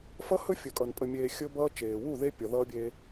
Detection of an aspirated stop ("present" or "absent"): absent